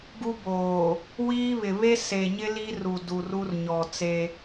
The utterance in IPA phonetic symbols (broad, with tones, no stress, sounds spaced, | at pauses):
ɡ u˦ b oː˨ | w iː˦ β ɪ˨ β e˦ s e˨ ɲ ɪ˦ l i˦ r u˨ d u˨ r u˦ r ɲ ɔ˨ t͡s e˦